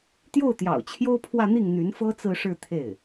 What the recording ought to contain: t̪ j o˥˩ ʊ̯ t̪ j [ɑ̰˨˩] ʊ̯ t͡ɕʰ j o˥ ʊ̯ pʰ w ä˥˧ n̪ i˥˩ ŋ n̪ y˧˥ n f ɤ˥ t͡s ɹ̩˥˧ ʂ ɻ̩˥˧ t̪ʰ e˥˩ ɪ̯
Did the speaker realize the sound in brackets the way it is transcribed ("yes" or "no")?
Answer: yes